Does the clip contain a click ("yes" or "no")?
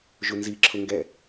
yes